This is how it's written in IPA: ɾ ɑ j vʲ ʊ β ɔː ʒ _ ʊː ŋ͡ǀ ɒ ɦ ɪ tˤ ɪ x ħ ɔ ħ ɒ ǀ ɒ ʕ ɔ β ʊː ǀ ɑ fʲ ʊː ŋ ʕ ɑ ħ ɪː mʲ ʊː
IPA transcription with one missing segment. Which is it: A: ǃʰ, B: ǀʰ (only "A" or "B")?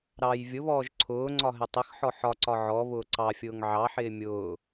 B